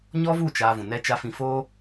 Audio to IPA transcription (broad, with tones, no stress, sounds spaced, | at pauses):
ɲ ɔ˦ v u˦˨ t͡ʃ aː˧ v ũ˨ n ɛ˦ t͡ʃ a˧ f ĩ˧ f oː˦